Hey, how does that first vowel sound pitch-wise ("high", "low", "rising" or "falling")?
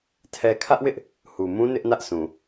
low